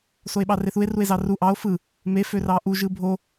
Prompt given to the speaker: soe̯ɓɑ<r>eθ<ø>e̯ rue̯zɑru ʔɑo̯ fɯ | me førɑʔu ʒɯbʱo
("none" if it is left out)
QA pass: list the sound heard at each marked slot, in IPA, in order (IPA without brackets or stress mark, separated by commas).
r, u